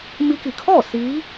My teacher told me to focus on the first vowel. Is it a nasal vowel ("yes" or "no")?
no